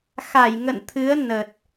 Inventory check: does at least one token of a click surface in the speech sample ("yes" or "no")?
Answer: no